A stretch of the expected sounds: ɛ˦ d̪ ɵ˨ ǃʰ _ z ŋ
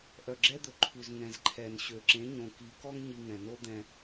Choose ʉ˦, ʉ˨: ʉ˨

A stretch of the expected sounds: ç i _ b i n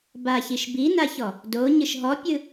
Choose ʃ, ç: ʃ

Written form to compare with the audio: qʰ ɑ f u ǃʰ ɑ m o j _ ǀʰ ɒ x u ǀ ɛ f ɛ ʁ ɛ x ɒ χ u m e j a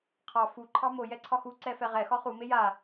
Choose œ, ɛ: ɛ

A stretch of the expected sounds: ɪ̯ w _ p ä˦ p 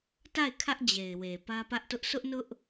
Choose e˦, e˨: e˨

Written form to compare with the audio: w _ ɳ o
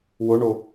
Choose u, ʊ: ʊ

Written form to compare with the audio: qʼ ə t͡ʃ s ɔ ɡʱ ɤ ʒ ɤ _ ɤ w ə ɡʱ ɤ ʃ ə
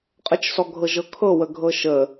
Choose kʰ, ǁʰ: kʰ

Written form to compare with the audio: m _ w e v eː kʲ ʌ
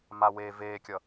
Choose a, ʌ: a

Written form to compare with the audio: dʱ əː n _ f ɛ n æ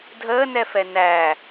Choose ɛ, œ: ɛ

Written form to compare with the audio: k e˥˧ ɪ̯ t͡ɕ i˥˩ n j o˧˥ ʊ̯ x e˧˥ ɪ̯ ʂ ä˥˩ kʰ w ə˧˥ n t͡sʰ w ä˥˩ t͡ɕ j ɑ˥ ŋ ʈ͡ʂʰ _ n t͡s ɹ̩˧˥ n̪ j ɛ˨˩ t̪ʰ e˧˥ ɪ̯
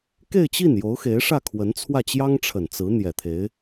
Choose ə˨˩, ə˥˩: ə˨˩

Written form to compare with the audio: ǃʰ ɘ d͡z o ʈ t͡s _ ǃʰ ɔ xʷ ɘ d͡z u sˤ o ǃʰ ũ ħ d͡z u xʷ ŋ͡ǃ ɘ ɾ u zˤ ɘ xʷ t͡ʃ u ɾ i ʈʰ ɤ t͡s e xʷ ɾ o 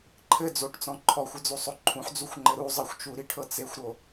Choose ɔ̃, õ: ɔ̃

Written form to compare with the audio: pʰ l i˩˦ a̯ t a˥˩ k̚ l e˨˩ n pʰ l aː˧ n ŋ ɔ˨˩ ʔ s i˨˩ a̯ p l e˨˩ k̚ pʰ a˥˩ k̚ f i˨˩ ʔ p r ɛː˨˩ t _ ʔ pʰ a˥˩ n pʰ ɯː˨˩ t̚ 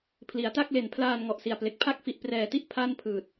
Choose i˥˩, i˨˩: i˥˩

